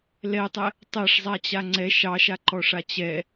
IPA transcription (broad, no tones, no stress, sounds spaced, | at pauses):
l ɛ tˤ ɛ | tˤ ɛ ʂ zˤ a t͡ɕ a ŋ͡ǀ ɛ ʃ ɑ ʃ a ǃ ɔ ʂ a t͡ɕ ɛ